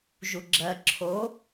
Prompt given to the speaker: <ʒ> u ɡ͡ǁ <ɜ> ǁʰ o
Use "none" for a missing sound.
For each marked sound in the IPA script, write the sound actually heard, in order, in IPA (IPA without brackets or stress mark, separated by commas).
ʒ, ɜ